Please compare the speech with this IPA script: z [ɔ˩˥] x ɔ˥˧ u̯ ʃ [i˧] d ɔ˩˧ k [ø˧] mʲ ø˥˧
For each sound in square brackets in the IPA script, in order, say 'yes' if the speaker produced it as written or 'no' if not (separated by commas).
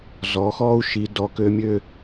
no, no, yes